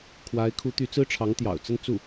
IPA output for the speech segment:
kʰ w a˧˥ ɪ̯ kʰ u˧˥ t̪ y˧˥ t͡s ɹ̩˥ ʈ͡ʂʰ ɑ˧˥ ŋ t̪ j ɑ̰˨˩ ʊ̯ t͡s ə˥˧ n t͡s u˥˩

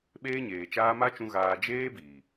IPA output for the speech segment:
ɓ eː˦ ɲ eː˨ t͡ʃ aː˦ m a˦ t͡ʃ ũ˧ ɣ aː˧ d͡ʒ eː˦ b iː˨

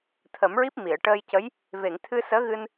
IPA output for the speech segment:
t̪ʰ ə˨˩˦ m ɹ i˦˥ p̚ m i˨˩˨ ə̯ ʈ əː˧ j c ə˧˥ j | v e˨˩˨ ŋ t̪ʰ ɨ˧ s əː˧˥ ɣ ɨ˧ n

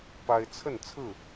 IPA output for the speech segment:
p a˦ ɪ̯ t͡sʰ ə˥˨ n t͡sʰ ɹ̩˥˨

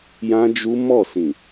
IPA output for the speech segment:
j ã˦ d͡ʒ u˦ m ɔ˦˨ s ĩ˨

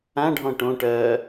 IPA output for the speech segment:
ã ɖʱ ɔ̃ ʈ õ ʈ ɜ

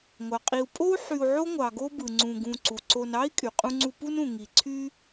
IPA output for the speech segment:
ŋʷ ɑ˩ qʼ i˨ u̯ pʼ o˥ u̯ ħ y˨ u̯ ʕ o˦ ŋʷ ɑ˩ ɡ o˥ b ɯ˩ ŋ͡ǀ ũ˨ ɡ ũ˨ ǀ u˩ ǀ o˨ n ɑ˥ i̯ kʼ y˩ qʼ ũ˥ ŋ͡ǀ u˦ p u˥ n ũ˩ ŋ i˨ ǀʰ y˥

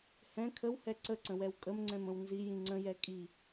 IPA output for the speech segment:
h ɛ̃ kʰ ə w h ɛ ǀ ə ǀ ə̃ w ɛ w kʼ ə m ŋ͡ǀ ɛ̃ m ə̃ w n z i j ĩ ŋ͡ǀ ə̃ j ɛ kʼ i

